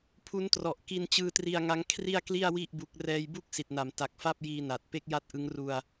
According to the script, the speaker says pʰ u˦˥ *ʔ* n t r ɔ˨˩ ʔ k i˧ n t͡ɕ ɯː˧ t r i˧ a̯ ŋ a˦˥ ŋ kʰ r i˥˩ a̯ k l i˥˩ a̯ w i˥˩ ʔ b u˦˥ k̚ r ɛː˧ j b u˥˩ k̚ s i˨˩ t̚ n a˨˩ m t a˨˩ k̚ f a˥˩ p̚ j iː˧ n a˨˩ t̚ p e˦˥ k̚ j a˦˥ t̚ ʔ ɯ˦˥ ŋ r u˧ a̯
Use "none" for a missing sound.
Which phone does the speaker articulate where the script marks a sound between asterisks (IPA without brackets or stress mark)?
none